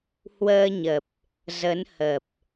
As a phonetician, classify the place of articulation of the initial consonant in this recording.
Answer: glottal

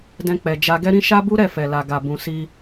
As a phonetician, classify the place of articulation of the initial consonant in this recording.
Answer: alveolar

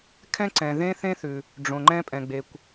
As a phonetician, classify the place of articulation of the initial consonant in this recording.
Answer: velar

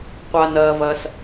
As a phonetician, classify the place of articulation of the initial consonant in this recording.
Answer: uvular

